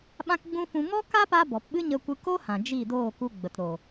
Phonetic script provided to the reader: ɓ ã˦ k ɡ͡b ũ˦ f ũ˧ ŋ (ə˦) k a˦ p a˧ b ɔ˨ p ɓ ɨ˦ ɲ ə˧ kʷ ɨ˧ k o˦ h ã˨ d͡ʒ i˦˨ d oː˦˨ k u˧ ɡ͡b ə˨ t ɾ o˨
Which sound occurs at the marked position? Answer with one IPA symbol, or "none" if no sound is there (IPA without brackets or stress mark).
ɔ˦